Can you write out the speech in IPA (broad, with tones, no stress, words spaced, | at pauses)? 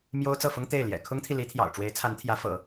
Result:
mjo˥ʊ̯t͡sɤ˥˩fʊ˥ŋ t̪e˥˩ɪ̯ljɛ̰˨˩ kʰʊ˥ŋt̪ʰi˨li˧˥t̪ʰjɑ̰˨˩ʊ̯ ʈ͡ʂwe˧˥ɪ̯t͡sʰa˧˥nt̪ʰjä˧˥ fɤ̰˨˩˦